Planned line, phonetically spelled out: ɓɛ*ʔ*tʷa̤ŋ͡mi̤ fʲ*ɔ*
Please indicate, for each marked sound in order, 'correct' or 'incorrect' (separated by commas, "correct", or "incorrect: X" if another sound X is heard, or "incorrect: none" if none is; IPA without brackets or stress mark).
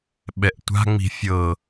correct, incorrect: ɤ